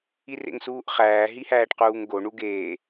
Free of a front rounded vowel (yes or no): yes